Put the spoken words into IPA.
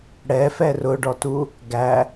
ɽ ɛ f ɛ r ʊ ɖ ɔ t u | ɡ æ

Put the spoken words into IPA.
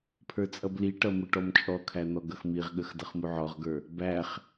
pʰ ə˞ t͡sʼ ʌ b l i ʈ ʌ m ʊ ʈ ɔ m t͡ʃʼ ɔ kʰ æ n̪ ɔ ɡ ʌ x m i ʁ ɠ ə x d ʌ χ m u ʕ ɔ ʁ ɡ ə˞ | b æ χ

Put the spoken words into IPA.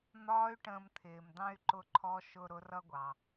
n̪ ɒː˧˥ y̯ ʈ ə̃ː˧ m t̪ʰ ɪː˩ m d̪ ɑ̃˥ y̯ ǃ ʊ˧ ǃʰ ɔ˧˥ ʃ ʊ˧ ɾ ʊ˧˥ r ʌ˥ ɡʷ ɑ˩

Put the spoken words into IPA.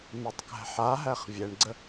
m e tˤ k æ̤ ħ a ɦ æ χ vʲ ɛ ɳ ɡ͡ǀ ə

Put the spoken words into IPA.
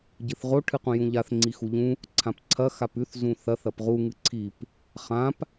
ɟ ɨ θ ʁ o ʈʰ ɨ q ũ j ũ ʎ a θ ŋ͡ǀ i x u ʎ ũ | ǀʰ ã p ǀʰ ɐ x a p ʉ θ z ũ θ ɐ θ ɐ p ʁ u ŋ ɨ ǀʰ i p | χ ã p

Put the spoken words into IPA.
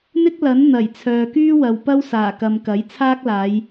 n̪ ɪ˥ k̚ l ɐ˨˥ n n̪ ɐ˨˩ j t͡sʰ œː˨ k yː˥ w ɐ˨ w p ɐ˥ w s aː˨˩ k ɐ˨ m k ɐ˨˥ j t͡sʰ aː˥ k̚ l aː˨˧ j

